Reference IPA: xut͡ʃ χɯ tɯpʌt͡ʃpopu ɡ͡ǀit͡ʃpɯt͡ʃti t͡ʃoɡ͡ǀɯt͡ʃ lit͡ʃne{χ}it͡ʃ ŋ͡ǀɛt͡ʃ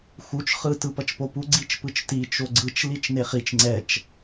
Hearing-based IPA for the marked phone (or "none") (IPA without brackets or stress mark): χ